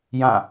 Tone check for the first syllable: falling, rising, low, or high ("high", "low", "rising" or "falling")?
falling